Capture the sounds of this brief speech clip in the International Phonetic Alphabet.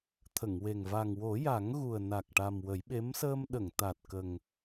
t̪ʰ ə˨˩˨ ŋ w e˨˩ ŋ v a˨˩ ŋ w o˨˩˦ j a˨˩˦ ŋ ɣ u˨˩ ə̯ n a˨˩ k̚ ʈ a˨˩ m w ə˨˩˦ j ɓ e˧˥ m s əː˧ m ɗ ə˨˩˨ ŋ t̪ a˨˩ t̚ k ə˨˩ ŋ

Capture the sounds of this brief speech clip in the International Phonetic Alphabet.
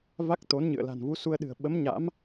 v a˦˥ k̚ t̪ o˨˦ n ɲ ɨ̰˧˨ ə̯ l a̤˨˩ n v u˨˦ s u˧ ə̯ ɗ ɨ̤˨˩ ə̯ ɓ ə˨˦ m ɲ a̰˧˥ m

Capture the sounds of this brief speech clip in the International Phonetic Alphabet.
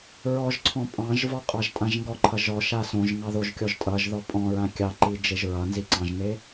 ɹ ɔ ʒ ǀʰ ɔ̃ pʼ ɑ̃ ʒ v ɔ qʼ ɑ ʒ tʼ ã ʒ ŋ ɡ ɔ ǃʰ ʌ ʒ ɔ ʃ a s õ ʒ ŋ ɑ ð o ʒ kʲ ɔ ʒ tʼ ʌ ʒ ð ɔ pʼ ɔ̃ ɹ ã kʲ ɑ ǃ i d͡ʒ e ʒ ɹ ʌ n z i ǀ ɑ̃ ʒ n e

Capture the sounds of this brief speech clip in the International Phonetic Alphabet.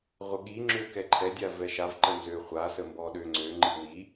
ʁʷ ə ɠ i ŋ͡ǁ ø k ɛ ǃʰ ɛ dʲ a v ɛ ʃ a v ǃ ə n z ø χʷ a s ə m b ɔ ɗ ø ŋ͡ǀ ø ŋ͡ǃ i w i

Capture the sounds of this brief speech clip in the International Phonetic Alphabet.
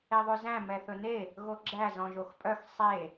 e ðˤ ʉ z æ̃ m ɛ θ ɵ n e | ɣ o ɡ͡ǁ æ z ɔ̃ ʒ o x pʼ œ x sˤ e

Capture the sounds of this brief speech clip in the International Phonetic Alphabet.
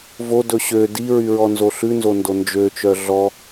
v o d ɵ ɕ ø d i ɹ y ɹ ɔ n z o ɬ ʉ n z o n d o n d͡ʒ ø t͡ʃ œ ɮ ɔ

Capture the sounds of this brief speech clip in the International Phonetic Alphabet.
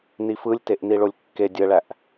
n i f ɯ lʲ t e ʔ n i ɭ o lʲ kː e dʲ ə ɭ æ ʔ

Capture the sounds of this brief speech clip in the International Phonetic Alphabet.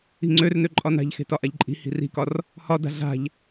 i̤ ŋ͡ǀ ø r n ø ǃʼ ɒ n a̤ ʎ x e̤ t ɒ ʔ a ʎ ǃʼ i̤ h i̤ r i̤ k ɒ r | h ɒ d a̤ ɮ a̤ ʎ

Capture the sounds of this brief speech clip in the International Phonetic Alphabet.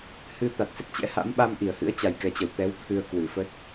h ɨ˧ t̪ a˨˩ t̚ s ə˦˥ t̚ t͡ɕ ɛ̰˧˥ h a̰˧˥ m ɓ a˧ m ʔ i˧˩ ə̯ h ɨ̰˧˥ ə̯ t͡ɕ a˨˩ j k ɛ˨˩ t͡ɕ ə˧˩ w t̪ ɛ˨˦ w t̪ʰ ɨ˧ ə̯ k w ɨ˧˩ f ə˦˥ t̚

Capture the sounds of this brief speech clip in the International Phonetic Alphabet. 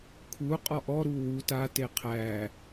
kʰ u qʼ ɔ ʔ ɔ ɾ u w u t a t e qʰ æ

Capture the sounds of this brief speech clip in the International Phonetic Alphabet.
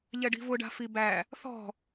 ʎ ɛ ɖ i̤ v ʊ ɖ a̤ f i b æ | θ ɔ̤

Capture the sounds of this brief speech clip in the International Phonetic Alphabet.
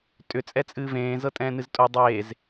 tʼ ʏ t͡sʼ ɛ t͡sʼ ɨː v ẽː z ɤ tʼ ɛ̃ː n ɨ z tʼ o dˤ eː z

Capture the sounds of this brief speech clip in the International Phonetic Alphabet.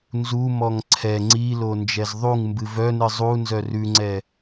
n z u m ɔ ŋ ǀʰ ɛ ŋ͡ǀ i l o n d͡ʒ ɛ z ðˤ u ŋ m b ɨ v œ n ɨ zˤ u n z œ r ʉ ŋ͡ǀ ɛ

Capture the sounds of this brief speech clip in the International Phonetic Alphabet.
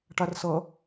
ʈ a r s ʌ

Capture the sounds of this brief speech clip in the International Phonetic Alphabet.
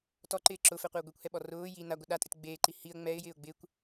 t ɔ ǃ ɪː ǁ ʊ f ɛ qʷ e ʊ̯ ɡʷ e kʷ h ɛ ɓ ɔ r ʊː j i n a ɡʷ ɪ ɗ a tʼ ɪ t ɡ͡b eː ǃ i h i ə̯ ŋ͡m ɛ ɪ̯ j ɪː ʊ̯ ɡ͡b ɪ kʷ

